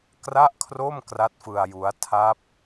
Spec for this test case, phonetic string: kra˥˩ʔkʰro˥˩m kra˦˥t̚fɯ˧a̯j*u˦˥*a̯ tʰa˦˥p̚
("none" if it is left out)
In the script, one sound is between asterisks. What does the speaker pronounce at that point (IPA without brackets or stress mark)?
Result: u˦˥